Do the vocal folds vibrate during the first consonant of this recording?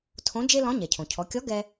no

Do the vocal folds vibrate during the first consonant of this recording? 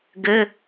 yes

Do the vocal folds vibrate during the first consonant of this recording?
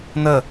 yes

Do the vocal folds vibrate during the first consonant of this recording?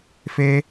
no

